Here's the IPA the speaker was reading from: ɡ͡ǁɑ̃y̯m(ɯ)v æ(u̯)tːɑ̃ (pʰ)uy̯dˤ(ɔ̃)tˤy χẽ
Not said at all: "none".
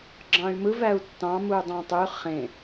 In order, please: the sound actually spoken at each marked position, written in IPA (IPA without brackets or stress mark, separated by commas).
ɯ, u̯, m, ɑ̃